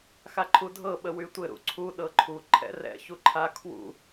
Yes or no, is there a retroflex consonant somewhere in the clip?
no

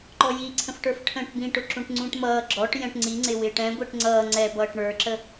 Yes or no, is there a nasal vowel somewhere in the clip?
yes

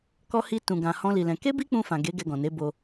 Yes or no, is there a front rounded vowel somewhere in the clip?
no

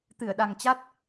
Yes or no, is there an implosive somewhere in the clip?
yes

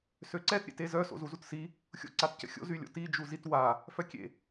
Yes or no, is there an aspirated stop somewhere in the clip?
no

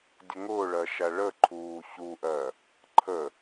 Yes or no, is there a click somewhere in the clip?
yes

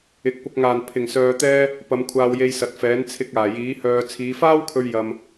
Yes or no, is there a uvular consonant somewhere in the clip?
no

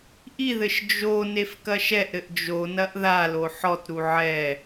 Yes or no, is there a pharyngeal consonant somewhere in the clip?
yes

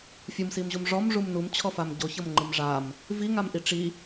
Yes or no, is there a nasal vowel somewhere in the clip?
no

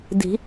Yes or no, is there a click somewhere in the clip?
no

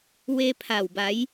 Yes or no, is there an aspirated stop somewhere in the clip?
yes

